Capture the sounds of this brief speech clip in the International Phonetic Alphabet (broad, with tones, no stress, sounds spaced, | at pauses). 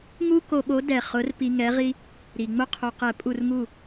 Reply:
ŋ u˥ k o˧ ɓ o˨˥ d ɛ˧˩ χ ʊ˨˥ r p i˧ ŋ ɛ˨˥ ʁ i˥ | ɾ i˩ ŋ͡m ʊ˥ qʰ o˧ q ɛ˧˩ pʼ u˥˩ r ŋ u˥˩